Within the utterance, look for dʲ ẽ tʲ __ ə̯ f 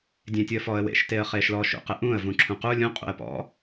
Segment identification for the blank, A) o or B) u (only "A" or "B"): B